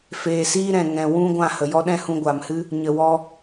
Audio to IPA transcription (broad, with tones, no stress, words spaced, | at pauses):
feː˨siː˦ɾɛ̃˨ ŋɛ̃˨wũ˦ ɡʷã˦˨hə˨jɔ˦ ɗɛ̃˦hũ˧ɡʷaː˨mhɨ˦ | ɲə˨wɔ˧